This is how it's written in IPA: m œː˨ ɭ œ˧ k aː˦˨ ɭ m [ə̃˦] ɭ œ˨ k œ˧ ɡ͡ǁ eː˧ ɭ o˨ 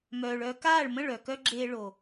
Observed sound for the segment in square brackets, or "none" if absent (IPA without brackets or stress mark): ə̃˦˨